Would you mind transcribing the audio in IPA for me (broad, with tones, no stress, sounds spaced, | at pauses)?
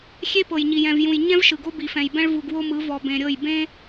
xʲ e˦ p ɤ˨ j ɲ i˨ j ɛ̃˨ v j ũ˨ j ɲ ɛ̃˦ v ʃ ɯ˨ ɡ o˦ b i˨ f ɛ̃˨ j b ɛ̃˦ ɭ v u˨ ɡ w o˦ m ɯ˨˦ v ɔ˨ b ẽ˨ ɾʲ ɤ˦˨ j b ẽ˦